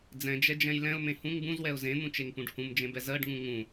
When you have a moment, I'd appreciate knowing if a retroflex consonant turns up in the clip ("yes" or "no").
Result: yes